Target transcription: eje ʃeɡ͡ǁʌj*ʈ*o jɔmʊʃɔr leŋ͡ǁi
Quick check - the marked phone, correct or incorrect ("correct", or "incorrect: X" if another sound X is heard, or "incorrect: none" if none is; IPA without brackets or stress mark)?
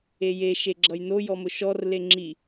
incorrect: n